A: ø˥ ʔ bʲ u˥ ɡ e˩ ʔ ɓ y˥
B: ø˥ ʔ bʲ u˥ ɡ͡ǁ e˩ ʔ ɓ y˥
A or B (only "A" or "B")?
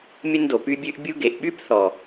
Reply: A